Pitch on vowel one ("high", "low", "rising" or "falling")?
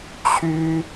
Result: high